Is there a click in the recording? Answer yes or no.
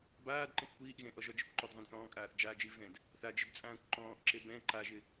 yes